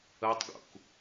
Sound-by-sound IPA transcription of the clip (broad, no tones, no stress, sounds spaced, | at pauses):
ə tˤ ɡ ṵ k